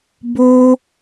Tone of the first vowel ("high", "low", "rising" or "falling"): high